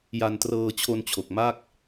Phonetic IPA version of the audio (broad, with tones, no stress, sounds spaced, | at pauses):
j a˧ n t r ɤː˧ t͡ɕʰ o˧ n t͡ɕʰ o˨˩ k̚ m a˥˩ k̚